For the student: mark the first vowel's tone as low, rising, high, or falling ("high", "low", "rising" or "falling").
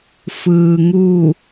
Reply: low